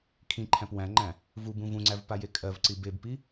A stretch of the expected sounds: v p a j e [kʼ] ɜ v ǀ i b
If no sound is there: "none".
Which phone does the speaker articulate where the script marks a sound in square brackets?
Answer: kʼ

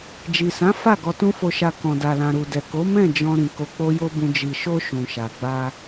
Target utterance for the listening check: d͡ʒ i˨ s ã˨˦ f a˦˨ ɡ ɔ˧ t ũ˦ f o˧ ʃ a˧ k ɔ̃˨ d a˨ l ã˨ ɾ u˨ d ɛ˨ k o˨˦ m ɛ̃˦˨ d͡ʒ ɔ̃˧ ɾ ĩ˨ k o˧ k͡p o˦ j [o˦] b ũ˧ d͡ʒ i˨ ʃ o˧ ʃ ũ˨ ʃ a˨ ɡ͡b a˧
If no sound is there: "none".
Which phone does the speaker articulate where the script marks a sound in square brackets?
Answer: o˦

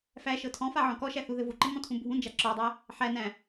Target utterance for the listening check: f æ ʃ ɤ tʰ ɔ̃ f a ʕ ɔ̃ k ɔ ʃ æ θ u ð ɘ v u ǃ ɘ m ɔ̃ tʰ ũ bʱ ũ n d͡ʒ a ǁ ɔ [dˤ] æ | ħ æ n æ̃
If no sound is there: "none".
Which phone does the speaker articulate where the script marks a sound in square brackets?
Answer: dˤ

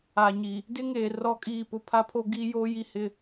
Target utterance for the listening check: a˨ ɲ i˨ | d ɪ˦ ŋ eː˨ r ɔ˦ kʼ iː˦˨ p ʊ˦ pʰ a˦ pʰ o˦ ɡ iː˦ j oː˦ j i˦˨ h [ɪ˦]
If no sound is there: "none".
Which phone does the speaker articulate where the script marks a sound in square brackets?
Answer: ɪ˦˨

